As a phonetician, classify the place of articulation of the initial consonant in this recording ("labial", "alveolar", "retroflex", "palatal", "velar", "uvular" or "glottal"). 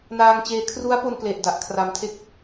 alveolar